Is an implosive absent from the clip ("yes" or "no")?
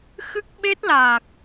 no